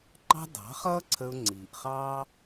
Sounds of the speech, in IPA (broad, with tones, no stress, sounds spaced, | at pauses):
ŋ͡ǃ ɑ̤˦ d ɑ̤˨˦ χ ʌː˦ ǀʰ ə˧ ʊ̯ ŋ͡ǀ iː˨ ʔ χ ɑː˦